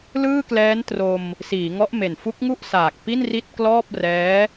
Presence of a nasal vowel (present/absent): absent